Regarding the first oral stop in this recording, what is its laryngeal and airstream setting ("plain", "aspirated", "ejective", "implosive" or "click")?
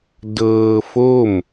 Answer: plain